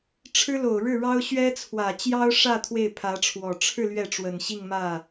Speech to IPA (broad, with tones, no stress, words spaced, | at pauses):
ʈ͡ʂʰɻ̩˥lo˨˩ʊ̯ ɻɻ̩˥˩ɻɑ˥ʊ̯ ɕɥɛ˥t͡sʰwä˨˩ t͡ɕjɑ˥ʊ̯ʂä˥˧ t̪ʰwe˥˩ɪ̯pʰä˧˥ʈ͡ʂʰwɔ˨˩ ʈ͡ʂʰɻ̩˥˧ lɥɛ˥˩ ʈ͡ʂwə˨˩nɕi˥˧ŋmä˥˩